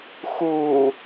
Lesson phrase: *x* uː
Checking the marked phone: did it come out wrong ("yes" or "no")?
no